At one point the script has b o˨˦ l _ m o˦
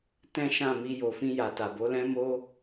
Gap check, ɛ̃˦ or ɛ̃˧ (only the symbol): ɛ̃˦